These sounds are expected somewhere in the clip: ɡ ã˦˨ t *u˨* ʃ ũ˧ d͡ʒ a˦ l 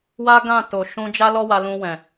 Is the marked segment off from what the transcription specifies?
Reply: yes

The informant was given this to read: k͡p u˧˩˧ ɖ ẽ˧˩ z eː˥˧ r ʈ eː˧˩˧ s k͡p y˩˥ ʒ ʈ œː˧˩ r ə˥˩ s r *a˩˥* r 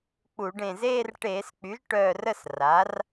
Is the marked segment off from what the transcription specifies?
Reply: no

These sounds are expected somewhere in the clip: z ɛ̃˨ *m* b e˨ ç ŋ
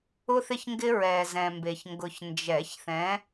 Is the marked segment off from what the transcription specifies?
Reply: no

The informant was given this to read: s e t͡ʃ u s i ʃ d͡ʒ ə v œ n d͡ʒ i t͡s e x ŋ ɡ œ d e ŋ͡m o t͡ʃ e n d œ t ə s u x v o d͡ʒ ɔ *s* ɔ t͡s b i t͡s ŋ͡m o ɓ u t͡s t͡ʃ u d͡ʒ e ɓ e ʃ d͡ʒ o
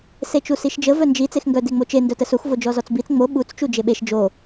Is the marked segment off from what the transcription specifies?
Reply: yes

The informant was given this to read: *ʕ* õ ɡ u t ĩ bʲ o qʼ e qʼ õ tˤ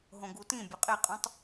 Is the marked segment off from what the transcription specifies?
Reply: yes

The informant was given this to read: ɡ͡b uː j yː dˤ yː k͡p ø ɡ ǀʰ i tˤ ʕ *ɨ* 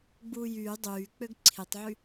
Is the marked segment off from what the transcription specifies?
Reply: yes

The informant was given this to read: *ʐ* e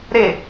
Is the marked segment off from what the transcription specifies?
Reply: yes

